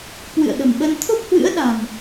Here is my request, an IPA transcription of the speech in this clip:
kwɨ̰˧˨ə̯ɗə̤˨˩mɓə˧n t̪ʰo˦˥p̚hwɨ̰˧˥ə̯ɗa̤˨˩m

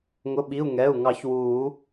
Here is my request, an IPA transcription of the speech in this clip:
ŋʊ˩˧˩ɓi˩˧˩u̯ ŋɛ˩˧˩u̯ŋɑ˨˩˦ç wuː˨˩˦

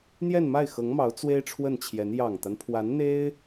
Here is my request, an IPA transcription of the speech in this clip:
n̪jɛ˥˧nma˥˩ɪ̯xɤ˧˥ŋmɑ˧˥ʊ̯ t͡swe˥ɪ̯ʈ͡ʂʰwə˥˩nt͡ɕʰjɛ˧˥n jɑ˨˩ŋt̪a˦npʰwa˧˥nn̪e˥ɪ̯

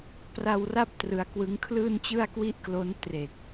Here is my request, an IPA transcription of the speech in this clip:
pra˧wra˦˥p̚ trɯ˧a̯kwɯ˦˥ŋ kʰlɯː˥˩nt͡ɕɯ˥˩a̯kwi˥˩ʔklo˦˥n tre˨˩k̚

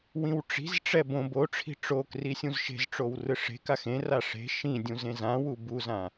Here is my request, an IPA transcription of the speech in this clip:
wĩwʈ͡ʂi̤zʈ͡ʂɛ bõ boʈ͡ʂʰi̤ ʈ͡ʂokri sʲũzʃe̤zʈ͡ʂow rɯʂe̤kax ẽra ʂe̤ ʃĩ dʲũzẽzãwu buzã

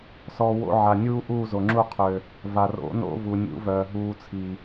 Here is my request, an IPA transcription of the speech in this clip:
sɔ˧ wo̰˧ʕa˨nʲuː˦ ʔuː˦˨zo˨ŋ͡ǁu˦˨ qʰø˨ | va˨ro̰˨˦no̰˧ vu˨ nʲṵ˨˦vœː˨ɦuː˧ t͡sʰi˨

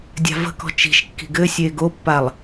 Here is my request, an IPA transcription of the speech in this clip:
dʲa̤və̤kɔ̤ t͡ʃi̤ʃkːi̤ ɡɘsʲe ɡopːalˠ

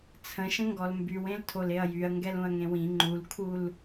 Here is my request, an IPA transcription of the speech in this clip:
t͡sʰə̃ ʃə̃ŋɡɔlmbywẽl tʰoleɐ̯jyɐ̯ ŋɡɛlũɐ̯ŋẽwĩ ŋ͡ǃulkʰul

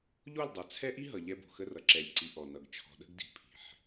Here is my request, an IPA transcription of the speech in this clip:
ʎo˦˨lˠdˤa˨t͡sʰɛ˦ʔi˦ ɦʌ˨ʎɛ˦ bo̤˨xə˦rʌ˨ ǁɛ˨lʲ ǀi˨ ʔɔ˨nʌ˨ɡ t͡ʃʰɔ̤˨ɗə̤˦ɡdi̤˨ pʰi̤˨ħ

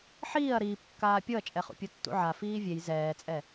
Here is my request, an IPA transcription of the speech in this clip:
ħiːɐ̯ ɾiːpkːaː pʲɤɐ̯t͡ʃʼɛχṵ pʲutːṵʕa fiːvʲej zɛːt͡sʼɛ

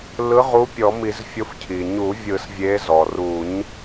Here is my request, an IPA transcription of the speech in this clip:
lɯ˨˥ʁu˨˥ pʲɔ˨˩˦mi˨˩˦zfʲo˨˥f cʰi˩ ɲu˨˩˦vʲɯ˨˩˦s vʲe˨˥ zɔ˩ru˨˩˦ɲ

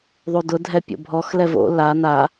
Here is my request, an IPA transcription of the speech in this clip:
ðˤudʊdʱɛ pʲo̰bʱɔxlɛ vo̰ la na

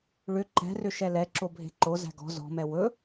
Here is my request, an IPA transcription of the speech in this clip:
ɭʏ ǃɛ̤rʏ ʃɛlɛǁo bʱe̤ǃozæ̤ ɡɔ̤ zɔ̤mɛ wɵ

